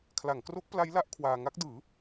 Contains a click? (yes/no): no